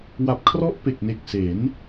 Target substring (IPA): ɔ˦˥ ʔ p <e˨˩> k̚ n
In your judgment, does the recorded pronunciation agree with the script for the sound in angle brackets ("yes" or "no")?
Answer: yes